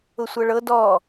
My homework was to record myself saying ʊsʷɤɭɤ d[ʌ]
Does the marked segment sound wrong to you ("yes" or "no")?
yes